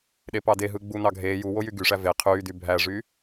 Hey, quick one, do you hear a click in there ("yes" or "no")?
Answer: no